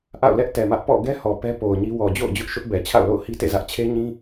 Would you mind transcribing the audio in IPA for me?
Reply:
ʔ a̰˦˨ ʊ̯ l ɛ˦ ʔ t ɛ˨ m ä˦ ʔ p ɔ̰˦˨ ɡ ɛ˦ h ɔ˨ p ɛ˦ p o˨ ʊ̯ ɲ i˦ w ɔ˨ d͡ʑ o̰˦˨ ʊ̯ d͡ʑ ʊ˦ ʔ ʃ ʊ˦ ʔ b ɛ˨ t͡ɕʰ a̰˦˨ ʊ̯ l o̰˦˨ ʊ̯ h i˦ t ḛ˦˨ z ä˦ ʔ t͡ɕʰ e˦ ɲ ĩ˦

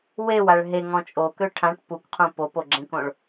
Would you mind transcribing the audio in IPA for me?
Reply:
w e w a ɭ ɦ e ŋ ɔ̃ t͡ʃʼ o k ø ʈʰ ã ʈ p u k qʰ ũ p o p o ɡ͡ǁ ẽ k õ ɭ

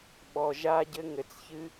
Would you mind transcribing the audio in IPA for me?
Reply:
ɓ ɔ˩ ʒ a˧ ɟ ɘ˧ ŋ ɘ˩ t͡s ç ɨ˧

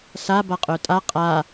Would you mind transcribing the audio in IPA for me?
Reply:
s a b a qʼ œ tʼ a qʼ a

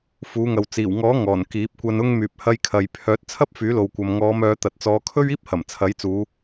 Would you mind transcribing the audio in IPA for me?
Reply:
f uː˨˧ ŋ ɐ˨ w t͡s iː˨˩ w ŋ ɔː˨˥ ŋ ɔː˨˩ n k iː˨˥ p̚ kʷ ɐ˧ n ʊ˧ ŋ m yː˨ p̚ h ɐ˧ j kʰ ɐ˨ j pʰ œː˨˥ t̚ t͡sʰ ɐ˥ p̚ f yː˨˥ l o˨ w kʷ ɐ˨ m ŋ ɔː˨˧ m œː˨˧ t̪ ɐ˨ t̚ t͡s ɔː˨˧ kʰ ɵ˥ ɥ iː˥ p̚ h ɐ˨˩ m t͡sʰ ɐ˨˥ j t͡s uː˨˧

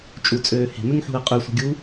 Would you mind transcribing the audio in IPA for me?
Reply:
t͡ʃʼ u t͡sʼ øː h e̤ m ʏ ŋ ħ ṳ ə̯ qʼ ʏ sʷ ə̤ ɡʲ u

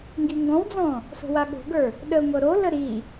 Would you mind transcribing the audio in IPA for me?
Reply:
ŋ ɡ i ŋ ɡ ɔ̃ w d͡z ɔ̃ | s o̤ w a ɠ o̤ ɡ ə˞ | ɗ ə ŋʷ ɤ ɾ o l ə ɾ i

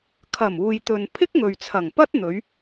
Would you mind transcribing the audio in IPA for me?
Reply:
kʰ ɐ˨˩ m uː˨ j t̪ ɵ˨ n pʰ ɪ˥ k̚ ŋ ɵ˨ ɥ t͡sʰ ɐ˨˩ ŋ p ɐ˥ t̚ n̪ ɵ˨˧ ɥ

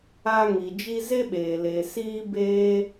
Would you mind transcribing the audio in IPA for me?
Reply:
a˧ ŋ i˨ d͡ʒ i˧ z e˦ ɓ eː˨ l e˧ s iː˧ b eː˧

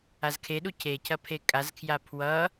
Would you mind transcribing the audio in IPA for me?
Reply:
a z kʰ e ɗ u cʰ e cʰ ɐ pʰ e kʼ a z kʰ j a pʰ w ʌ

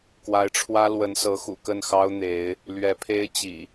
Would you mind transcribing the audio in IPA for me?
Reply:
k w a˨˦ ɪ̯ ʈ͡ʂʰ w ä˦ l w ə˨˦ n s ɤ˨˦ x ṵ˨˩ k ə˥˨ n x ɑ˦ ʊ̯ n̪ e˨˦ ɪ̯ | l ɥ ɛ˨˦ pʰ e˦ ɪ̯ t͡ɕ ḭ˨˩

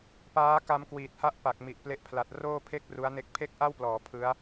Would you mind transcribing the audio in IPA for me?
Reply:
p aː˦˥ k a˦˥ m k w iː˨˩ t̚ h a˥˩ ʔ p a˨˩ k̚ m i˨˩ ʔ p l e˦˥ ʔ pʰ l a˨˩ t̚ r oː˥˩ pʰ e˥˩ k̚ r u˦˥ a̯ n e˥˩ k̚ pʰ e˥˩ k̚ ʔ a˥˩ w p l ɔː˩˦ pʰ ɯ˦˥ a̯

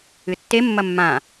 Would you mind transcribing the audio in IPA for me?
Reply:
ɨ tː e mː ɐ mː ã

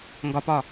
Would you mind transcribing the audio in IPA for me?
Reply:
ŋ ɡ ɒ p ɒ

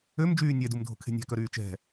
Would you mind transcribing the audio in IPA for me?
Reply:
ø m d͡ʒ yː nʲ ɛ d u m dʱ o̤ kʰ e̤ nʲ æ̤ k œ ɾ yː t͡ʃ ɛ̤

